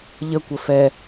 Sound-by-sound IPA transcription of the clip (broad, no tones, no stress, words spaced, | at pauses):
ʎəkʷə fɛ